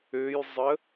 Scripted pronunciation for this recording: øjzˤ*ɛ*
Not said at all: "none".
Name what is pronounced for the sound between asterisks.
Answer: ə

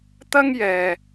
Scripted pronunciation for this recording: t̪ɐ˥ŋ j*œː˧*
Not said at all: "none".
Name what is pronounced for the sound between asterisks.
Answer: ɛː˧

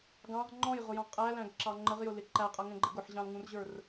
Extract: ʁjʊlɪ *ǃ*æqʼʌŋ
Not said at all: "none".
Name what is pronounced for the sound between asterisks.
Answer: ǃ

